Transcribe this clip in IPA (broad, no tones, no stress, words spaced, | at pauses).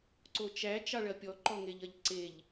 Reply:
ǀot͡ʃæ t͡ʃɑɭɐpʲɔ ǃɔŋeʎɐʎǀeʎ